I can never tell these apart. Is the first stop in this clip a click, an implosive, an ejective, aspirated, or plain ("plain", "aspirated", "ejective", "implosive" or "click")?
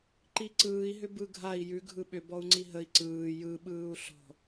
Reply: click